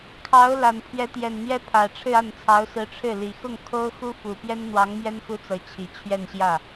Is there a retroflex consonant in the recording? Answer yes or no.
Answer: yes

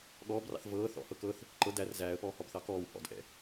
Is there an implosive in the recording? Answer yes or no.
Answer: yes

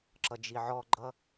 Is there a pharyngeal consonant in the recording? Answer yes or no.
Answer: yes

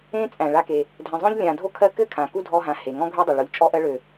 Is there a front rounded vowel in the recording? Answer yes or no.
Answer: yes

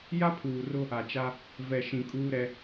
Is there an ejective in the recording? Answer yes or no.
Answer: yes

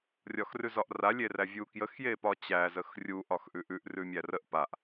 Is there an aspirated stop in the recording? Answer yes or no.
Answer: no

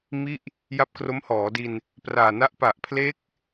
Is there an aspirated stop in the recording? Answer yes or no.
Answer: yes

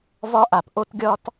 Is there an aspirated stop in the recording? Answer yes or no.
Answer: no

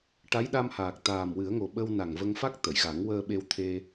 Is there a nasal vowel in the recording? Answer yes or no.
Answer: no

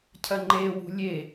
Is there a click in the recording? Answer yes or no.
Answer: yes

